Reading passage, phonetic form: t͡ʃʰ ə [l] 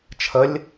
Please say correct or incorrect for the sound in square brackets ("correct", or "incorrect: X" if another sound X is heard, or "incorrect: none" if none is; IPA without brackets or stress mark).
incorrect: lʲ